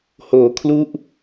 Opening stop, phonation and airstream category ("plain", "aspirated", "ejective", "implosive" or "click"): aspirated